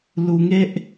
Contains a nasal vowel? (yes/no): no